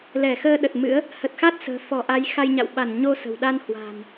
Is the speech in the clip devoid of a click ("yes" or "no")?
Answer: yes